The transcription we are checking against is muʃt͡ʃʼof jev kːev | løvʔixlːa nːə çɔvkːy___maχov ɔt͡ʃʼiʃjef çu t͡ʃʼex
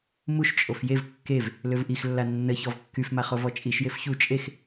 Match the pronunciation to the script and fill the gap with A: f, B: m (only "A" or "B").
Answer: A